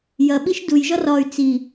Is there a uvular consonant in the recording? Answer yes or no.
no